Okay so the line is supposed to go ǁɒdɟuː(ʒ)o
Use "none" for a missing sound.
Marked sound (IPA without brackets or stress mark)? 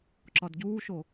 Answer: ʃ